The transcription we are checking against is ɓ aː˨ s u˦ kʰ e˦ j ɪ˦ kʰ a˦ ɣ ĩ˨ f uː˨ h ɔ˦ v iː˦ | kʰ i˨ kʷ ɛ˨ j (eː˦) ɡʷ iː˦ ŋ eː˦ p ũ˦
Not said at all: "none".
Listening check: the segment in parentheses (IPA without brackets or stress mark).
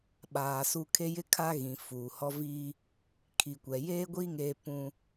eː˦